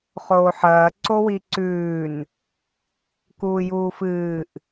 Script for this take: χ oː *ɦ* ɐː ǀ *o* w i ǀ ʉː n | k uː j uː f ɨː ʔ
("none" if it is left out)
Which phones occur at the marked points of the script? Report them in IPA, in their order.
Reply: ħ, o

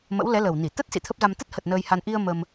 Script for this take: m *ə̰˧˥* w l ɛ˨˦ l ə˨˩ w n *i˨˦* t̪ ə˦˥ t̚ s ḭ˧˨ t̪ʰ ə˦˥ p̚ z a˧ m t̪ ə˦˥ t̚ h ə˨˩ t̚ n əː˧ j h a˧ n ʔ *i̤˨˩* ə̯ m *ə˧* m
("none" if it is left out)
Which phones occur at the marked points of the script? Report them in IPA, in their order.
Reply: ə̰˧˥, i˧˩, i˧, ə˧

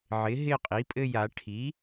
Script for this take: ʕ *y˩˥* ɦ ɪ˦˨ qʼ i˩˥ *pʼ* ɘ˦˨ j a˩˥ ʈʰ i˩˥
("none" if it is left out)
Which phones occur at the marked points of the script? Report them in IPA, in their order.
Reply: ɪ˩˥, pʼ

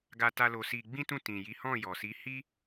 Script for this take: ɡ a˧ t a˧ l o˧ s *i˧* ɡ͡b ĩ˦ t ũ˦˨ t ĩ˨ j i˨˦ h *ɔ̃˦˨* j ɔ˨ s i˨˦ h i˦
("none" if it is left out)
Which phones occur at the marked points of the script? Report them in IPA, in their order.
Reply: i˧, ɔ̃˦˨

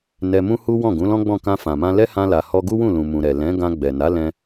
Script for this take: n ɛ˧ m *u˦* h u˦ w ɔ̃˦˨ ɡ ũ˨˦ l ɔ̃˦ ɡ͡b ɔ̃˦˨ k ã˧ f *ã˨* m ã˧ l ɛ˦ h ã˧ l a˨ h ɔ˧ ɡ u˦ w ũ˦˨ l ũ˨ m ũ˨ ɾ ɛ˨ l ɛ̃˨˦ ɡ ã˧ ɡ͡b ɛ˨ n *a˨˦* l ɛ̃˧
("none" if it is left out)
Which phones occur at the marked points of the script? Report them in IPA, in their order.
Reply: ũ˦, ã˨, a˨˦

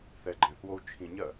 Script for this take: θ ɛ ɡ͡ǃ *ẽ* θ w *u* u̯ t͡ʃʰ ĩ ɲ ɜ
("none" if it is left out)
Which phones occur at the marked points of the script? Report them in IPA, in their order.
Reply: ɛ̃, o

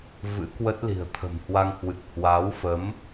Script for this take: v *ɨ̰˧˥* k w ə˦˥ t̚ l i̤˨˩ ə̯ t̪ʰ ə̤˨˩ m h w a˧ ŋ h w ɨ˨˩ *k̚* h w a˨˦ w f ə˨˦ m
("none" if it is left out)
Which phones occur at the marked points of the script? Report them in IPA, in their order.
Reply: ɨ̰˧˥, k̚

